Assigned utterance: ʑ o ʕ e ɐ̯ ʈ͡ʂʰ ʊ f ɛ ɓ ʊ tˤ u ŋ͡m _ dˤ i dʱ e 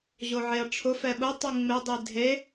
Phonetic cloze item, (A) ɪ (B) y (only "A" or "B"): A